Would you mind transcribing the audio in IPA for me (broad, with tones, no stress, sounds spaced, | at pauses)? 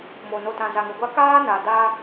m o˨ n o˨ t ã˨ z a˨ ŋ ʊ˨ ɡʷ a˦ k aː˦ n a˨ d a˦